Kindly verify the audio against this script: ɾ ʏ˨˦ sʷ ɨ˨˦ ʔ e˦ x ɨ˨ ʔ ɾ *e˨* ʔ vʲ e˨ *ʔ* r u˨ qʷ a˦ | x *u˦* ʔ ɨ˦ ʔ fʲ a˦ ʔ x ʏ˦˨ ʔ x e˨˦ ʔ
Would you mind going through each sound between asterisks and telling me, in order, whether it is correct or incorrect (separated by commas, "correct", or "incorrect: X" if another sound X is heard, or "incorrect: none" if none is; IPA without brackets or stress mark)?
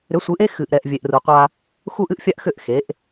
incorrect: ɛ˨, correct, correct